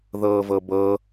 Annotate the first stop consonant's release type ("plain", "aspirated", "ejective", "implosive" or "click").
plain